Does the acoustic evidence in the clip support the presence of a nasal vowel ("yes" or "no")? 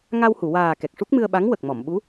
no